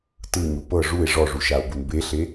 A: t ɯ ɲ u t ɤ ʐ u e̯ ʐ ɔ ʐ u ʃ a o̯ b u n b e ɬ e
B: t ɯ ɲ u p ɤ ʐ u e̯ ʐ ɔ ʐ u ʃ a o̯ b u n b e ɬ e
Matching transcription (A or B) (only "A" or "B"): B